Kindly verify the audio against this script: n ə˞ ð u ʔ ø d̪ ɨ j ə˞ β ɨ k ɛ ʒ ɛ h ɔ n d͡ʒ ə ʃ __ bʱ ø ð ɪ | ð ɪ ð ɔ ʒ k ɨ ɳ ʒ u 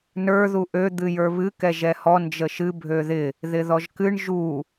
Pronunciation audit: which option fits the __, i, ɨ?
ɨ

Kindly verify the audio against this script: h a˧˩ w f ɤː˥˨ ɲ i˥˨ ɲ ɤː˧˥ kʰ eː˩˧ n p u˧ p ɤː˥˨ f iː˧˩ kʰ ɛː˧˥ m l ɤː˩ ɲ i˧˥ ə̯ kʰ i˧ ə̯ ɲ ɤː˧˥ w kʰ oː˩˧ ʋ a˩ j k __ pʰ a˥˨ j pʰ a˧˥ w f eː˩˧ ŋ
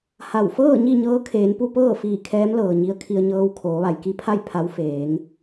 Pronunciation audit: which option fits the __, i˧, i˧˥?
i˧˥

